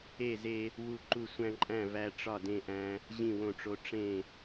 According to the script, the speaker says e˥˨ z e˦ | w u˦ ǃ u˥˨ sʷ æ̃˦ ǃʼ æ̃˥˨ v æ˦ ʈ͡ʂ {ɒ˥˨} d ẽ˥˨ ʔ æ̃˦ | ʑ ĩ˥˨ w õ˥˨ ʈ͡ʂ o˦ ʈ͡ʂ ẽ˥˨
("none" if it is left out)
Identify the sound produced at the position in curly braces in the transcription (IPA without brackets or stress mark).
ɒ˥˨